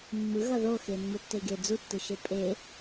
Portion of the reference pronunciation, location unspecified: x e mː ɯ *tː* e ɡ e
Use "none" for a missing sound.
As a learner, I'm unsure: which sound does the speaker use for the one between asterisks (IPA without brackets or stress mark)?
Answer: tː